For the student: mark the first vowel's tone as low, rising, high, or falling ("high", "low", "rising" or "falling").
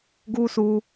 high